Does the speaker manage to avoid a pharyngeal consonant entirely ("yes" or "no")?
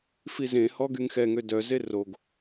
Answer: yes